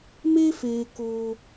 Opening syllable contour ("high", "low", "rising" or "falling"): high